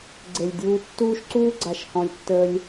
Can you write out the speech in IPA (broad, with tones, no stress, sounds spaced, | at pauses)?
ɡ͡ǀ e˨ lʲ dʲ uː˧ tː uː˦ ʃ ǀ uː˦ ɡ͡ǀ a˨ ʃ h ɔ̃˧ lʲ tː əː˦ lʲ